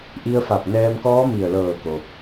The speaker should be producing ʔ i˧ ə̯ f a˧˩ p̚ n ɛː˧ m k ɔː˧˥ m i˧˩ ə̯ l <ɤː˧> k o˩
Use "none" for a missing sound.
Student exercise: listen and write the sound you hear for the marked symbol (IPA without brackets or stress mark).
ɤː˧˩